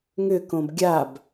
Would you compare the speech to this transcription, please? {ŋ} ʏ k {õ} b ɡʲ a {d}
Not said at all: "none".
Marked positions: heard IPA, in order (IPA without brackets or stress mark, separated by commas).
ŋ, õ, b